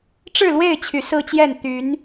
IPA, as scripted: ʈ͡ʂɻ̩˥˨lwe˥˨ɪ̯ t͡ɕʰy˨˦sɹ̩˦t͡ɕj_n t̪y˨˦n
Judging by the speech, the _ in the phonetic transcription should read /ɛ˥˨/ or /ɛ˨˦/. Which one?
ɛ˥˨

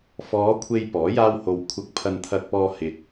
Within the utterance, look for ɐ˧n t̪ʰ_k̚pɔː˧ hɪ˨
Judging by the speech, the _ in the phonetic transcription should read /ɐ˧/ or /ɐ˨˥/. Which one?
ɐ˧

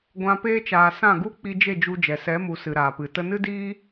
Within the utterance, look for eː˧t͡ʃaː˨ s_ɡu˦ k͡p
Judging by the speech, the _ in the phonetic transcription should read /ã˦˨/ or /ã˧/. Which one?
ã˦˨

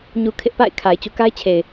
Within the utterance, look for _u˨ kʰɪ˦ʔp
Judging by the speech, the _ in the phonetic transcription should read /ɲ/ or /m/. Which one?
ɲ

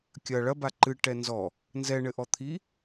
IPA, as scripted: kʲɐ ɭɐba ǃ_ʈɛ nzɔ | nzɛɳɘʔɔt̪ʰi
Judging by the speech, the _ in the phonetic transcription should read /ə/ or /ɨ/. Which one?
ɨ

